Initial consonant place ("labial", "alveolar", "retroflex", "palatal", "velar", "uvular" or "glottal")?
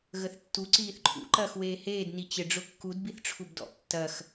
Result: velar